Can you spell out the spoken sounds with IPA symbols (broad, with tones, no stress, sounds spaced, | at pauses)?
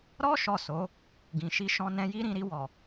ɾ ɔ˦ ʃ ɔ˦˨ s o˨˦ | ɡ ĩ˨ ʃ i˧ ʃ ɔ̃˧ n ɛ̃˧ j i˦ ɾ ĩ˧ ɾ i˧ w ɔ˨